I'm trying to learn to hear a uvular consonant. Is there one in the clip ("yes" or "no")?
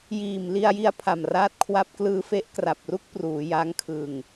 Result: no